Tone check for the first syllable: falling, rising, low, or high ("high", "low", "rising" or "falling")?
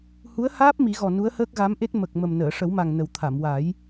rising